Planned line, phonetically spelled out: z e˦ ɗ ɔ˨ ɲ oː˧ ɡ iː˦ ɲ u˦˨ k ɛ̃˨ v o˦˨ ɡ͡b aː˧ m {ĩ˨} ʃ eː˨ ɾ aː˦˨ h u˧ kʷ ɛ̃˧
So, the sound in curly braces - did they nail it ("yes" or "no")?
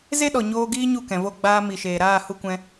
no